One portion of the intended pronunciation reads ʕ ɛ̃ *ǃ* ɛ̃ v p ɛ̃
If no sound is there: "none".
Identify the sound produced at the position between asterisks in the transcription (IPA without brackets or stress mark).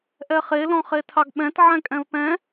kʼ